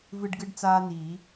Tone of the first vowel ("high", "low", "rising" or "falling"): high